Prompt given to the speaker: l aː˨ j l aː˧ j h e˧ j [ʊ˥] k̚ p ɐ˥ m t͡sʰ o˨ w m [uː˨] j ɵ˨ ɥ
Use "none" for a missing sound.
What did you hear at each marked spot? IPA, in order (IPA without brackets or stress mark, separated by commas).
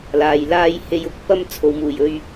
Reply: ʊ˨˥, uː˨˩